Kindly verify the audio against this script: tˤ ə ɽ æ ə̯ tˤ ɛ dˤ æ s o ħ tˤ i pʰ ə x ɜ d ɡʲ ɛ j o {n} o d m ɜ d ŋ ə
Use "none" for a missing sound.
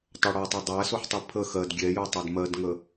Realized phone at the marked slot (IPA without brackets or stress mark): tˤ